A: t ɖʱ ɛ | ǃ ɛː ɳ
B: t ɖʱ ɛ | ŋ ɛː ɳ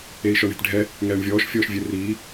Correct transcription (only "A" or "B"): B